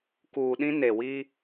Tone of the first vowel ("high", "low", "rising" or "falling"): low